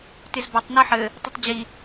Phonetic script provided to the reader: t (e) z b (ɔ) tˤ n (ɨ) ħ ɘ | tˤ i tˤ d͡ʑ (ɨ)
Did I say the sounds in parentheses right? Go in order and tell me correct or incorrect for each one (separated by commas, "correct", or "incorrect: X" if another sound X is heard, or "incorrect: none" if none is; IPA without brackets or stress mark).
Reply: incorrect: ɨ, correct, incorrect: i, incorrect: i